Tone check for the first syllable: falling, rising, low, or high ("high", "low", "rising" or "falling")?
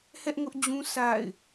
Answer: high